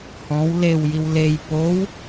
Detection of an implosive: absent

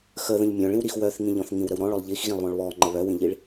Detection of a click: present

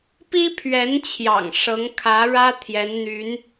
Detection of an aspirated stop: present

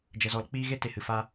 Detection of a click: absent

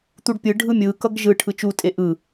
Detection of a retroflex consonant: present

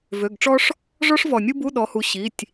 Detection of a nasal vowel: absent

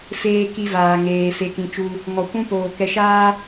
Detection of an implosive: absent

